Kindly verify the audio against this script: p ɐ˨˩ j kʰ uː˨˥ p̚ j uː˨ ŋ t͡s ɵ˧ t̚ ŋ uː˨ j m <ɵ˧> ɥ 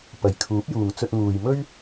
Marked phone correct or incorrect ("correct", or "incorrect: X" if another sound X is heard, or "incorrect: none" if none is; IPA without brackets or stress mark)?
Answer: incorrect: ɵ˥